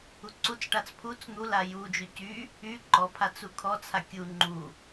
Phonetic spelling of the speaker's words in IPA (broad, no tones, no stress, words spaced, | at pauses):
uǀut͡sʈat͡s pʰut͡s n̪ula jud͡ʒy cy | y ǃɔpʰat͡s ukʰɔt͡sʰa kʲu ŋ͡ǃu